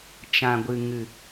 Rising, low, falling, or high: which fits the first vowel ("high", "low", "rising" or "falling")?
low